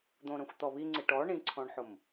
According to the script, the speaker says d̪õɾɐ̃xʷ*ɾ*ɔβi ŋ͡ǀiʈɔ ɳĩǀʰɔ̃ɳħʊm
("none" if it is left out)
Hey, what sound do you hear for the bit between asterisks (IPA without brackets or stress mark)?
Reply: t̪